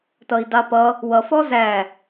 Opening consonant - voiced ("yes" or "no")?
no